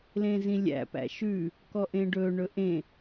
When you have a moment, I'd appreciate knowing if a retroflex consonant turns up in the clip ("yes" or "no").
yes